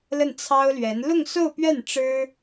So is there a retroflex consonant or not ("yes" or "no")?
yes